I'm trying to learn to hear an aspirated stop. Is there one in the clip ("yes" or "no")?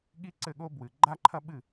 yes